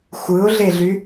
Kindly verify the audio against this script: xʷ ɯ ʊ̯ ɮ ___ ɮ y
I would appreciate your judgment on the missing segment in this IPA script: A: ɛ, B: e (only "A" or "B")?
B